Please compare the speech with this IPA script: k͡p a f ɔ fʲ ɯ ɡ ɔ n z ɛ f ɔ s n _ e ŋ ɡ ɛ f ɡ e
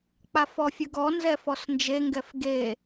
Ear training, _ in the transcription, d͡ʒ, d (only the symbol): d͡ʒ